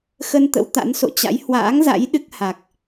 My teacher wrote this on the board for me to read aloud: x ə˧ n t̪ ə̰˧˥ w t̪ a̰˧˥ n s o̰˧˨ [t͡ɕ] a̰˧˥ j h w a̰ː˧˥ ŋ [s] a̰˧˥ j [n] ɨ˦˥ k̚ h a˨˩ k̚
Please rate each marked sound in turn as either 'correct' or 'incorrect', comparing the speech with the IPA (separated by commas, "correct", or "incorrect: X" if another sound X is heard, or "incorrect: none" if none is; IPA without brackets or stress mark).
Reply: correct, incorrect: z, incorrect: ɗ